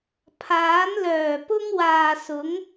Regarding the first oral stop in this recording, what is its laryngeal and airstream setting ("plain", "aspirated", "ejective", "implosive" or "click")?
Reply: aspirated